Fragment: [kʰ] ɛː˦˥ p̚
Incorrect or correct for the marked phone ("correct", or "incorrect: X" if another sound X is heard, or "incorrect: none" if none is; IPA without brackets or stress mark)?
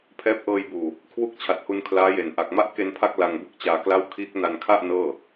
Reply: incorrect: pʰ